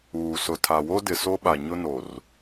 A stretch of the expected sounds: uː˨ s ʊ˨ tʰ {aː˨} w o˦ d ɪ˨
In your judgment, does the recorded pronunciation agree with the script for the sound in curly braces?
no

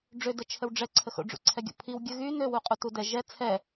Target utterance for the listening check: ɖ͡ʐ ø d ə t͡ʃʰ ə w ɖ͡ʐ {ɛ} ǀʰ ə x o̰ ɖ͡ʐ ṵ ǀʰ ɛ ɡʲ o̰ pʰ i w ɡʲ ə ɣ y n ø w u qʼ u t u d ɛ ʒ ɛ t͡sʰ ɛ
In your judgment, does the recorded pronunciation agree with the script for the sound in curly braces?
yes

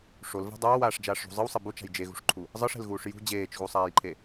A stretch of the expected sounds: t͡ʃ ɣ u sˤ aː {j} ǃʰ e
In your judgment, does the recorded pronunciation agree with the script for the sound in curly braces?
yes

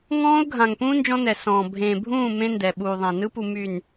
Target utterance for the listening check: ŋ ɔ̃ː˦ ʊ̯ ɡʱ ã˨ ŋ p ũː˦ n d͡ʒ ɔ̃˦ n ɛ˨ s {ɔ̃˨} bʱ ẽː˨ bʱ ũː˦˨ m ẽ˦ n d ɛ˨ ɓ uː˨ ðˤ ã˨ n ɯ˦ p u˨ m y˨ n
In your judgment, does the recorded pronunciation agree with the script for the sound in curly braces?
no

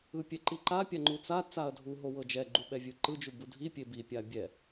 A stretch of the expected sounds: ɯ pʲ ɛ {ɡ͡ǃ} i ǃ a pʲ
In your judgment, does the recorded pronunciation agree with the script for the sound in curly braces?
no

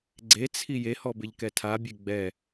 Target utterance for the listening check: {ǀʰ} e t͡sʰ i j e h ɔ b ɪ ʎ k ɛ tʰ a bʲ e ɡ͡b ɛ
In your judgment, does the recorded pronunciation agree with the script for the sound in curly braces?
no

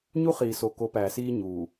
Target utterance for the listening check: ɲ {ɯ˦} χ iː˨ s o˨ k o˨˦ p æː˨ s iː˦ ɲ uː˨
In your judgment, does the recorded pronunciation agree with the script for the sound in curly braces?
no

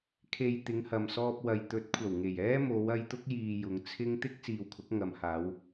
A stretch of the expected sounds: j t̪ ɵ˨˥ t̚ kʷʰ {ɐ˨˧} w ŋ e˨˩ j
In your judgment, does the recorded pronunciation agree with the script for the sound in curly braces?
no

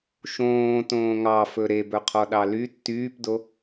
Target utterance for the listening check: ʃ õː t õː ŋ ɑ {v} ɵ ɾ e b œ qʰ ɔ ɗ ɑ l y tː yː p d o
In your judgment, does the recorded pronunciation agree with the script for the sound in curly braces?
no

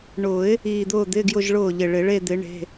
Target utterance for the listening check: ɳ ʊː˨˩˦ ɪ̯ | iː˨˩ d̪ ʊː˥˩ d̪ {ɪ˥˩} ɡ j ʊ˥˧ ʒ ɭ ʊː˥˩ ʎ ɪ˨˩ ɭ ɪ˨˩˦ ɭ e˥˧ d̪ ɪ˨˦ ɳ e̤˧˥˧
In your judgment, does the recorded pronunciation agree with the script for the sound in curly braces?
no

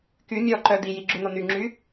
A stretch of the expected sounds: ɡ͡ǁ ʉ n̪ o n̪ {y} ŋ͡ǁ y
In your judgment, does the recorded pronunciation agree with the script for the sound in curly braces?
yes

